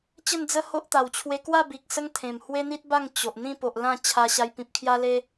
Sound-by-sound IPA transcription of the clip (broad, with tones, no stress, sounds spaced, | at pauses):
t͡ɕ ə˥˧ n d͡z ə˦ h o˦ ʔ t̪ a˨˩ w t͡ɕʰ w e˧ k w a˥˧ b i˨ k̚ s ə˦ ŋ t̪ʰ ẽ˨˩ m h w e˦ n̪ i˦ t̚ b a˥˧ ŋ t͡ɕ o˨ ʔ n̪ ĩ˥˧ p o˨ ʔ l ã˥˧ t͡ɕʰ a˧ ɕ a˧ j p ĩ˨ p̚ kʰ j a˦ l e˦